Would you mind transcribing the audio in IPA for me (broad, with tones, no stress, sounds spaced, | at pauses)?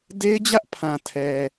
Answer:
d e˦ ɪ̯ d͡ʑ ä˦ ʔ pʰ ã˨ tʰ ɛ˨